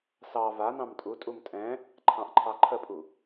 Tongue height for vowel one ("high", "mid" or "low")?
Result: low